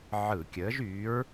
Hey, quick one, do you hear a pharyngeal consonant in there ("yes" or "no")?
yes